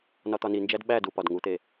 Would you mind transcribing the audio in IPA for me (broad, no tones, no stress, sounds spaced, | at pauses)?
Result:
n ɒ t̪ ɒ n i n d͡ʒ æ d ɓ æ d u p ɒ d ŋ u t̪ e